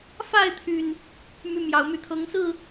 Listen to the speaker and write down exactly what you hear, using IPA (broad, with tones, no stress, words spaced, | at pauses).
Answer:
fa˥˨ɪ̯t̪ʰy˨˩n | my˦ mjɑ˨˩ʊ̯my˨˦t̪ʰɤ˨˦ŋsɹ̩˥˨